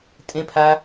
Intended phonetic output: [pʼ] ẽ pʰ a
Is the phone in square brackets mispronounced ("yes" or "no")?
yes